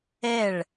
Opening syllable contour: falling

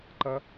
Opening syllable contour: high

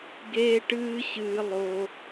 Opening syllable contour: high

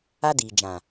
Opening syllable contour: high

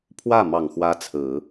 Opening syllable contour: falling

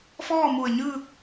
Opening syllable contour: falling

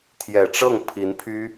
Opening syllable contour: low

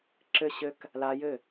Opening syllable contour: falling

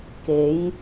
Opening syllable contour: rising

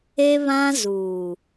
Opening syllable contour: high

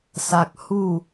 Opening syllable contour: high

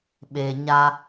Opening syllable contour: low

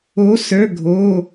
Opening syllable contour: rising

